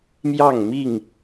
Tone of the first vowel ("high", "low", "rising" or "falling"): falling